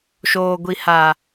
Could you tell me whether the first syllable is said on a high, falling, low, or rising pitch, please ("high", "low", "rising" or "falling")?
low